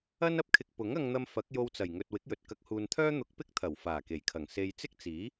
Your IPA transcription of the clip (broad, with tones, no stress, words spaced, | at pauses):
ɐ˥n ɐ˧p̚kʰɪ˧k̚ pʊ˨˥ŋ ɐ˥ŋn̪ɐ˥m fɐ˨˥k̚jo˧wt͡sɐ˨˩jŋɵ˨t̚ wɪ˨˥k̚jɵ˨t̚ kɐ˨˥k̚huː˨nt̪ʰœː˥ n̪ʊ˧k̚ pɪ˥k̚t̪ʰɐ˨˩wfaː˨˩ ke˨˩jkʰɐ˨˩ŋ se˨j t͡sɪ˥k̚t͡siː˨˥